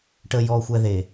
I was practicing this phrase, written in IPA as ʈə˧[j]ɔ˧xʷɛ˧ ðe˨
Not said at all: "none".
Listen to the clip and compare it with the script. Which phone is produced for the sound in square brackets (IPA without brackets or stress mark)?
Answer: j